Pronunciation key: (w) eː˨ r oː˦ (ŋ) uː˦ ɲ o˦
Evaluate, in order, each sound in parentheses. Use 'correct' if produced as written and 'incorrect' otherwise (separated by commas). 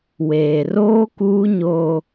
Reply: correct, incorrect